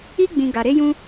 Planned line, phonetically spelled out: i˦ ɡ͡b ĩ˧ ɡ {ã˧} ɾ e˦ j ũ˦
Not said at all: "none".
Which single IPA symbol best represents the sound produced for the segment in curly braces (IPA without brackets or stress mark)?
a˧